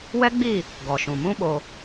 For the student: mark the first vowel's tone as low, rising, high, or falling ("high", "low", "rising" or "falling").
high